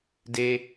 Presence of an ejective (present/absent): absent